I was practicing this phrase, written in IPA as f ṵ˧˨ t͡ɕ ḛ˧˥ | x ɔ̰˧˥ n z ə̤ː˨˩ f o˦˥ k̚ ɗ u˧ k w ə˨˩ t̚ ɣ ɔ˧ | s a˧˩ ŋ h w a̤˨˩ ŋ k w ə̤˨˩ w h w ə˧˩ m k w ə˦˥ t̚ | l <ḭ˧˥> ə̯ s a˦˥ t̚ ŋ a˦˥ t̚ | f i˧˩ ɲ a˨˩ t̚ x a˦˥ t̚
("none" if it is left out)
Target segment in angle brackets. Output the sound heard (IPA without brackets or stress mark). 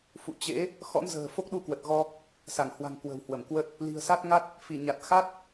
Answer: i̤˨˩